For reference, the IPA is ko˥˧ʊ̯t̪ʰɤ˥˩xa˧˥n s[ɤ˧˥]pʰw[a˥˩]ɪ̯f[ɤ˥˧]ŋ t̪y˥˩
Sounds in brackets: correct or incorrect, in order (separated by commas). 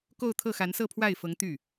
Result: incorrect, correct, incorrect